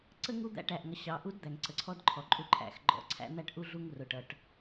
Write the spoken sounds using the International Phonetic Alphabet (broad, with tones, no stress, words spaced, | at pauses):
ǀə˦ ŋu˦d̪æ̰˦ʈæ˨ʔŋʌ˨ ɕɑ˨ʔu˦d d̪æ˨ŋǀə˨ǀʰɔ˦dǃʰɔ˨ ǃʼu˦ǃʰæ̰˦˨xɡ͡ǃɔ̰˦ ǀʰæ̰˦n̪æ˦ʈʔu˦ ɮu˦ŋrʊ˨ʈʌ˨ʈ